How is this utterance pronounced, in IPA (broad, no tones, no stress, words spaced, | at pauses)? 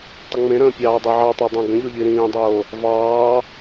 tˤəŋ͡mẽɾə̃ː pʲɑːdˤeʕɑtˤɑ dˤẽɡə̃ʎo ʎiɾĩːdˤoː | vɑː